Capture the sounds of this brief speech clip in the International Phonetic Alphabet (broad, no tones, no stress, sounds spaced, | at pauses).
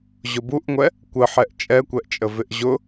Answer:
ʑ ʊ b u ʔ ŋʷ ɛ | kʷ ə ħ ɛ ʔ t͡ʃʼ ɛ kʷ ɛ ʔ t͡ʃʼ ə v ɪ ʔ ʑ ʊ